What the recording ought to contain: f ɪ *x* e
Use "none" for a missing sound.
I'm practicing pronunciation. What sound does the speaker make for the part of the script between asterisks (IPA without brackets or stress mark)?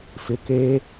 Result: k